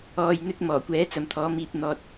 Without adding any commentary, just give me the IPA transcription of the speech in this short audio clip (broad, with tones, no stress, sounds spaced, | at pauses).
ɔː˨ j n̪ ɵ˥ t̚ m ɔː˨˩ kʷ ɛː˨˥ t͡s ɐ˨ m t̪ʰ ɔː˨˥ m iː˧ p̚ n̪ ɔː˨ t̚